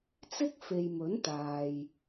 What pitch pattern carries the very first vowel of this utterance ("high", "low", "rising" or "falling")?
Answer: high